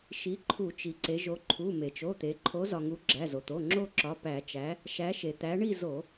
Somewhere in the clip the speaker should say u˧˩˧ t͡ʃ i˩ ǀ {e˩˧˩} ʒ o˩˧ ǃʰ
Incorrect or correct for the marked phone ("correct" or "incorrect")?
incorrect